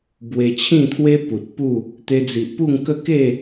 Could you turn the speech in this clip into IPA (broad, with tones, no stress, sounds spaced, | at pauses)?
b w e˧ t͡ɕʰ ĩ˥˧ t̪ʰ w e˦ p u˨ t̚ p u˥˧ | t̪ e˧ d͡z i˨ ʔ p u˥˧ ŋ k ə˥˧ k e˥˧